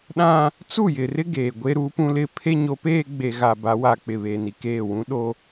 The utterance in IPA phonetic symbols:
ɗ ã˦ | t͡s u˦˨ j ɪ˨ r ɪ˦ ɡ eː˨ ɡʷ e˦ ɾ uː˦ p ũ˦ l ɪ˦ pʰ e˦ ɲ o˨˦ p eː˦ ɡ͡b e˨ ɣ a˨ b a˨˦ w a˨ k͡p ɪ˨ β eː˨ n i˨ k eː˦˨ w ũ˦ ɗ o˦

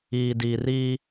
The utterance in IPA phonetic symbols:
iː˨ d iː˨ r iː˦

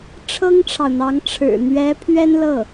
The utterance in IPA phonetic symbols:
ʈ͡ʂʰ ɤ˥ ŋ ʈ͡ʂʰ ɑ˨ ʊ̯ n̪ ɑ˧˥ ŋ ʈ͡ʂʰ ɻ̩˨˩ n̪ ɥ ɛ˧˥ pʰ ɥ ɛ˥ n l ɤ˥˩

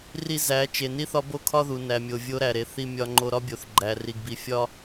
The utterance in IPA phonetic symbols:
r i˦ z æ˨˦ t͡ʃ e˨ n i˦ θ ɒ˦ b o˦ kʰ ɒ˦ ð u˨ n æ˨ mʲ o˨ vʲ o˦ ɾ æ˨ ɾ e˨ θ i˦ mʲ ɒ˦ ŋ͡ǃ o˦ ɾ ɒ˦ bʲ o˨ θ ɡ͡ǃ æ˨ r i˨ ɡ b i˨ fʲ ɒ˦

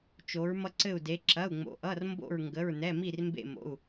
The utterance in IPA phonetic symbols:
t͡ʃ o˩˧ ɹ m ʌ˧˩ ǀ ɘ˧˩ u̯ d e˩˧ ǁ ɐ˩˧˩ u̯ ŋ͡m o̰˩˧ ʔ ʌ˩˧˩ r m b o̰˧˩ ɹ ŋ ɡ ə˩˧˩ ɹ n ɛ˩˧˩ m i˧˩ r m b ḛ˧˩ m o̰˩˧˩ u̯

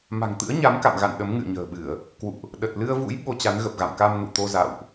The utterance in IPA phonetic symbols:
m a̤˨˩ ŋ t̪ ɨ̰˧˥ ə̯ ɲ a˨˦ m k a̰˧˨ m ɣ a̰˧˨ n ɗ ə˨˦ m ŋ ɨ̰˧˨ ə̯ ɲ ə̤ː˨˩ ɓ ɨ˧˩˨ ə̯ | k w ṵ˧˨ ʔ | ɗ ə˨˩ t̚ l ɨ˧ ə̯ v ṵ˧˥ j ɓ o˧ t͡ɕ a˨˦ n ɣ ə˨˩ p̚ ɣ a̰˧˨ m k a˧ m n ṵ˧˨ t̪ o˧ z a̰˧˨ w ʔ

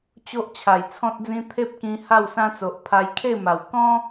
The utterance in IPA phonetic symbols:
t͡ɕ o˦ ʔ t͡ɕʰ a˨˩ j t͡sʰ ɔ̃˦ t̚ d͡z ĩ˦ t̪ʰ e˦ p̚ k ĩ˧ h a˥˧ w s ã˦ t͡s o˨ ʔ pʰ a˧ j kʰ e˥˧ m a˨˩ w k ɔ̃˦

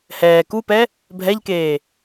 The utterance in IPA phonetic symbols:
h ɛː k u p ɛ | bʱ ɛ ʎ k eː

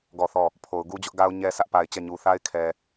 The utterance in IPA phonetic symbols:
ɡ ɔ˦˨ θ ɔ˦˨ | pʰ o˨ ʊ̯ ɡ u˦ d͡ʑ ʊ˦ ʔ ɡ a˦ ʊ̯ ɲ ɛ˦ s ä˦ ʔ p a˨ ɪ̯ t͡ɕ ɛ˦˨ ɲ u˨ θ a˦ ɪ̯ kʰ ɛ˨

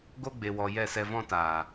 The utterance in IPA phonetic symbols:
ɡ o˧ ɡ͡b e˨ w ɔ˨ j ɛ˦˨ s ɛ˧ v ɔ̃˦ t aː˨

